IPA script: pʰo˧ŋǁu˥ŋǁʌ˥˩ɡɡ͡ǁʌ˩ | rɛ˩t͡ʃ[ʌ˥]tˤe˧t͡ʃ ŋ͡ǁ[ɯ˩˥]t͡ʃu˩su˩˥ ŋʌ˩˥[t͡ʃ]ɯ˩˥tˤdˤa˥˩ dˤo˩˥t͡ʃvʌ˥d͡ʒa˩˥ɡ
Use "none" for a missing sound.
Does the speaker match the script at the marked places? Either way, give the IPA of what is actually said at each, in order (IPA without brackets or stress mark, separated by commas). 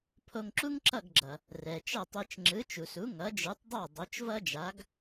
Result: ʌ˥˩, ɯ˩˥, d͡ʒ